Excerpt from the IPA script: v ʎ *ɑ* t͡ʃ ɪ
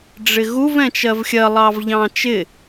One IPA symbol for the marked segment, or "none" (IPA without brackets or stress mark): ɑ̃